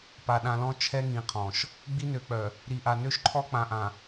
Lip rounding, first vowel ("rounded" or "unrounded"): unrounded